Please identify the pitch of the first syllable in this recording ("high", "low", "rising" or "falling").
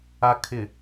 low